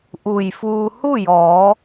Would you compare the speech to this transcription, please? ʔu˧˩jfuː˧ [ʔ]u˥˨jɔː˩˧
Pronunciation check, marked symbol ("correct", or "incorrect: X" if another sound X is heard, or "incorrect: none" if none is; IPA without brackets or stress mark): incorrect: h